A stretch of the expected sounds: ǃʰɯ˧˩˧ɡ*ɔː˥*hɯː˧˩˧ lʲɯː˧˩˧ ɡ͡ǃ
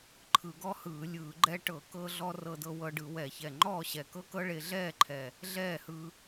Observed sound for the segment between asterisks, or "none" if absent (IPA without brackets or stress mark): ɔ˥